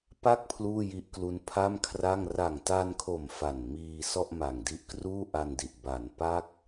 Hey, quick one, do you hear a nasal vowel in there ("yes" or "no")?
no